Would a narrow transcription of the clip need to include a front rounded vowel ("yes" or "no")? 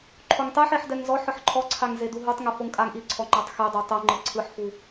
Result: no